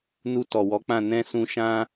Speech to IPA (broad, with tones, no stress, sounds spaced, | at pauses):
n u˧ t ɔ˨ w ɔ˨˦ k͡p ã˦˨ n ɛ̃˧ s ũ˧ ʃ ã˦